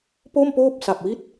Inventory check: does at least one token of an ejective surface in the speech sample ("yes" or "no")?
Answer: no